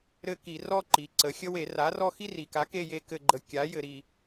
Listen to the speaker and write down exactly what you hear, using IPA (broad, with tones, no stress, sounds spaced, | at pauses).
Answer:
ɾ ɘ˦˨ k i˧˩˧ r ɔ˦ ǃ i˩˧ ǀ ə˩˧ xʲ ə˦ w e˧˩˧ r a˩˥ r ɔ˦ x i˦ r i˩ k a˩˥ k e˦˨ j e˦ k ɘ˦˨ ɡ͡ǃ ə˩˧ kʲ a˩˥ j ɘ˧˩˧ ɾ i˩